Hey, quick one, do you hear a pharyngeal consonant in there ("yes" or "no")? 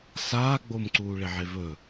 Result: yes